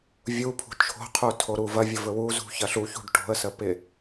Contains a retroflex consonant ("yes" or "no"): yes